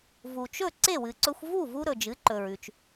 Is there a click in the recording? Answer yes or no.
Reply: yes